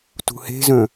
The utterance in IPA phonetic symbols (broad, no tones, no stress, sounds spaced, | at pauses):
t ṳ h e̤ z œ̃